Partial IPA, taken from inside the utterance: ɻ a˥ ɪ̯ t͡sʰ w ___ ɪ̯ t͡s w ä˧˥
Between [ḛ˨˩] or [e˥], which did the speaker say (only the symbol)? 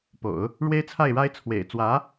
ḛ˨˩